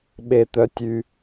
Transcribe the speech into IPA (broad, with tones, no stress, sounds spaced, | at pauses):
ɓ e˨ t̪ œ˨ tʲ y˨